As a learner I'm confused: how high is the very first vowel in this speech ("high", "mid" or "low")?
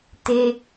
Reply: mid